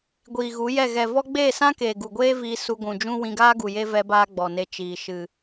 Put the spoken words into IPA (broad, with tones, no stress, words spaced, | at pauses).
ɡʷiː˨ɣu˨˦jɛ˦˨ ɣɛ˨ vɔ˦ ɡ͡beː˦˨sã˦keː˨ ɡu˨ɡʷeː˦ viː˧ su˧ɡʷũ˨d͡ʒũ˦ wĩ˧ɡaː˦ ɡu˨je˦ vɛ˧baː˧ ɡ͡bɔ˨ne˧ t͡ʃiː˨ ʃɨ˨